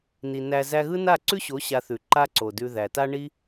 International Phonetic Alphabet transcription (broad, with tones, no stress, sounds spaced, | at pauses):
n i˨ n æ˧ z æ˧ ɣ ɯ˦ n a˦˨ ǀ ʉ˦ ɕ o˨˦ ɕ a˧ θ ʉ˨ ǃ a˦ ǀ o˨ d ʉ˧ ð æ˨ t a˦ ɳ i˦